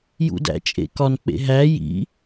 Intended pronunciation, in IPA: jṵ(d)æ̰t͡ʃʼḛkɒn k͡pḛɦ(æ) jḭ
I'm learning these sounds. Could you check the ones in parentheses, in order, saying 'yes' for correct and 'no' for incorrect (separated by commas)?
yes, yes